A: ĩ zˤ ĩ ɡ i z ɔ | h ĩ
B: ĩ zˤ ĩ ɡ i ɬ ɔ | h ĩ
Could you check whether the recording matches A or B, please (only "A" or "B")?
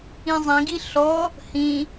B